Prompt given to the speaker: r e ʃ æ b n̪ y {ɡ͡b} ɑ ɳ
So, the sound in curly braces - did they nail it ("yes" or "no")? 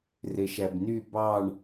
no